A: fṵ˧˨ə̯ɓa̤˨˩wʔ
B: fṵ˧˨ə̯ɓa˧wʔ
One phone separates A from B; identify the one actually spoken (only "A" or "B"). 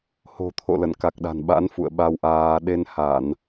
B